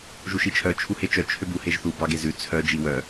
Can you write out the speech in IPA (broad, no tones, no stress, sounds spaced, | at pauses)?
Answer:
ʒ u ʃ i t͡ʃʰ œ t͡ʃʰ u h e t͡ʃ œ t͡ʃʰ ø b u h e ʒ θ u b ɑ ɡ e z ʉ t͡sʰ œ d͡ʒ i w œ